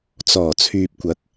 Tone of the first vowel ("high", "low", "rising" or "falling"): low